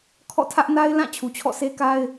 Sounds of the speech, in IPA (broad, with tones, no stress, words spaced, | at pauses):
kʰɔ̰˦˨tʰä˦ʔna˦ɪ̯ lã˦˨ t͡ɕʰu˨t͡ɕʰɔ̰˦˨se˦ka˦ɪ̯